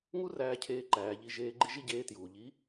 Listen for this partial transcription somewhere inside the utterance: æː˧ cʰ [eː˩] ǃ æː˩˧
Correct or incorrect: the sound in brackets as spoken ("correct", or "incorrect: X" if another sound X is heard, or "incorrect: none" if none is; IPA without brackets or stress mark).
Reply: incorrect: eː˧˥